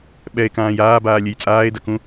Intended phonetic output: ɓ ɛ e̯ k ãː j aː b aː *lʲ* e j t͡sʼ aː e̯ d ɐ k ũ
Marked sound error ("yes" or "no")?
no